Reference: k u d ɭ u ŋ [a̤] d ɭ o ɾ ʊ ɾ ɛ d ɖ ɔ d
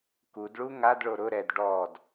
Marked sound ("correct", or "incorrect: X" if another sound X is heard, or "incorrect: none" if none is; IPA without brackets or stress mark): incorrect: a